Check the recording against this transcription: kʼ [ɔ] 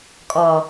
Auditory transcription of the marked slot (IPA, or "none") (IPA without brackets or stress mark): ɔ